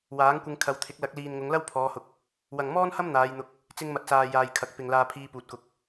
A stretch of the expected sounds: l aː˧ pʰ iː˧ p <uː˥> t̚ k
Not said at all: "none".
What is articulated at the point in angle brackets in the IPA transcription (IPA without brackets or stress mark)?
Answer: uː˨